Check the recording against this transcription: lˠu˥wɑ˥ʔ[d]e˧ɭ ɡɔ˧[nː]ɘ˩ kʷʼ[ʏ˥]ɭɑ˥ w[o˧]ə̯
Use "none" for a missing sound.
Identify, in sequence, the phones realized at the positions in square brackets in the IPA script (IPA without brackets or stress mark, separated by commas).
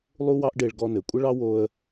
ɖ, n, ə˥, o˧